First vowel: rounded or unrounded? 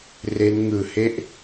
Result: unrounded